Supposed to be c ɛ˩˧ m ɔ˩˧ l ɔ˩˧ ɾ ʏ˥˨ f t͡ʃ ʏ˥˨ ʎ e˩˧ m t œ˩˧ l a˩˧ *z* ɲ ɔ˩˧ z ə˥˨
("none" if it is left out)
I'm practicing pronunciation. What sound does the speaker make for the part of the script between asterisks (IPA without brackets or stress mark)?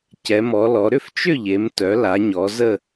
none